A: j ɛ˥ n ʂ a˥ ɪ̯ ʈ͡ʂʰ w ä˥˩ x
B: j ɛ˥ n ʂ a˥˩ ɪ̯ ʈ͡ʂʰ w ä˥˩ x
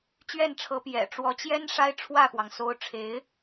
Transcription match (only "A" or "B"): A